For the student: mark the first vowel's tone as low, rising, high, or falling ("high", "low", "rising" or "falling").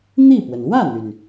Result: falling